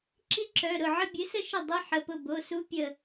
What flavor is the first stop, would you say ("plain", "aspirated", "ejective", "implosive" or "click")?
click